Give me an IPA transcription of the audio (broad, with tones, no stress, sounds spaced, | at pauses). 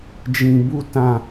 d͡ʒ ĩ˧ b u˦ t ã˧